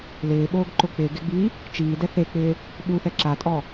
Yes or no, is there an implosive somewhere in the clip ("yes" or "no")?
yes